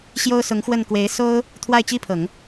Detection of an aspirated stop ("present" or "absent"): present